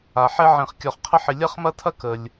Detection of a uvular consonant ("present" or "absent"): present